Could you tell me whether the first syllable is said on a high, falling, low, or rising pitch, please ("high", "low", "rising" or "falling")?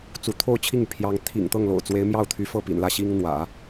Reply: rising